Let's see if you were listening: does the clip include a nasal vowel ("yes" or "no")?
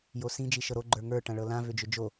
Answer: yes